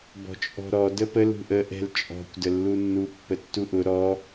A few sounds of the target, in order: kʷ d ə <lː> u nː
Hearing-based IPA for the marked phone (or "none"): lː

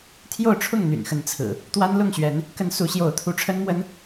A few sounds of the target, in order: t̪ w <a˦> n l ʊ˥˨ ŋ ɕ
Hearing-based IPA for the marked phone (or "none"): a˦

